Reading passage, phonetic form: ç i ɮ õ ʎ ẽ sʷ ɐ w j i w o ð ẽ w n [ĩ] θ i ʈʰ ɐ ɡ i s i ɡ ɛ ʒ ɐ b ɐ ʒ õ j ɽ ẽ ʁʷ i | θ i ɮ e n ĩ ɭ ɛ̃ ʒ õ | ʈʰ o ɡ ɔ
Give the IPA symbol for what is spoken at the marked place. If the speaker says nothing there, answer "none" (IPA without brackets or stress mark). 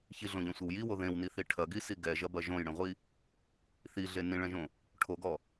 i